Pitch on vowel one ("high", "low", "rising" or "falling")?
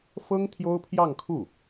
high